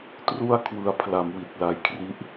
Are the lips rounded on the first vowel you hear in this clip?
yes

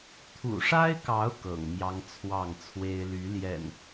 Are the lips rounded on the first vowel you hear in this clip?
yes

